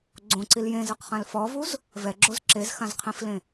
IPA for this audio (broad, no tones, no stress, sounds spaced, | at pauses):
ɡ͡ǀ õ ǀ i l j ẽ z ɯ q χ ã l f ɔ v u z | v ɛ ɡ͡ǁ o z ǁ e z x ã z qʰ ĩ f l ẽ